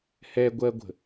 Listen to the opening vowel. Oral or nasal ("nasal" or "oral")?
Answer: oral